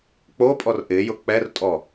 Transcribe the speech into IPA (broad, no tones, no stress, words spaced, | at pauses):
k͡popʼɔr ʔɪjʊ k͡pɛrtʼɔ